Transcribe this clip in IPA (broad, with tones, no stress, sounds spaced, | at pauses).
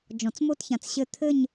d͡ʒ ɔ̃˨˩˦ t͡s m o˥˧ t ç ã˨ t͡s ɕ ɘ˥˩ t̪ʰ ɘ˥˧ ɲ